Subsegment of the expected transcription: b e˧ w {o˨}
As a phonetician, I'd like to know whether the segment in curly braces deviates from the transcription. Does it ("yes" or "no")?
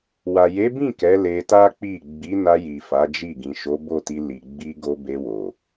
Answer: no